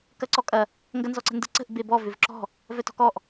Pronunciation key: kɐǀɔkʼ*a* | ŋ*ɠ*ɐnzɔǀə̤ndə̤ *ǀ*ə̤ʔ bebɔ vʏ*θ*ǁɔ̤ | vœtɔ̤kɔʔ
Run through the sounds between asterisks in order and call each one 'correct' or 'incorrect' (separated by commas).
incorrect, incorrect, correct, incorrect